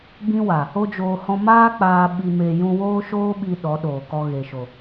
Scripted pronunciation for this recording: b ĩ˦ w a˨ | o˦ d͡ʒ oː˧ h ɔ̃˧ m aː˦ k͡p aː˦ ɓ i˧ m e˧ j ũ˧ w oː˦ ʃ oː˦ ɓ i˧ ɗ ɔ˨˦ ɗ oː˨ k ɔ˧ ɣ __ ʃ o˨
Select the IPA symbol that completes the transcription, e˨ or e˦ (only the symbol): e˨